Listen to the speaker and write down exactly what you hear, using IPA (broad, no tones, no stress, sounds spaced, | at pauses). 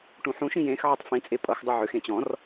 ʈ ũ ħ ũ ʃ ĩ j ẽ x ʕ ʌ tˤ f ĩ t͡sʼ e pʼ ʌ x dˤ u ʕ ʏ x ẽ t͡ɕ ɔ̃ r